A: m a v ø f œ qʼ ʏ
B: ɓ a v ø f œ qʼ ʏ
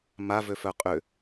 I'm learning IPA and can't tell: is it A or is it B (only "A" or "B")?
A